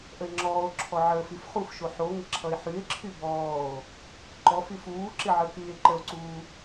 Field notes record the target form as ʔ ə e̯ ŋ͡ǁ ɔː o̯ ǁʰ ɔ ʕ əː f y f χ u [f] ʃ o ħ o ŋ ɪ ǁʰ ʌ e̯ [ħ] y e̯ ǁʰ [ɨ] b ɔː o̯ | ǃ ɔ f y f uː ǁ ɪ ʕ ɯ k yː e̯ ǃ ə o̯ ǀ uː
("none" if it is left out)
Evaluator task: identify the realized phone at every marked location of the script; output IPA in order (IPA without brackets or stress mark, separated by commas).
f, ħ, y